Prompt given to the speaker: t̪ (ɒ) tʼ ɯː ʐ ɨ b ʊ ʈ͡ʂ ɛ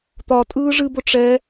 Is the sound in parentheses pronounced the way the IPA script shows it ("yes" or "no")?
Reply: yes